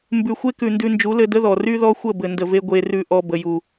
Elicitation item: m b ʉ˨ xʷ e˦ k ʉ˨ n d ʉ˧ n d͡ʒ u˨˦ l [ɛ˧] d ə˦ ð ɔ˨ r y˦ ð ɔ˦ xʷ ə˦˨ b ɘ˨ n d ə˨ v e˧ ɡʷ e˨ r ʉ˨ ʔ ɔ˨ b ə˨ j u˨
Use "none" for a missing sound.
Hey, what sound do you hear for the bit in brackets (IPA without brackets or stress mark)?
ɘ˧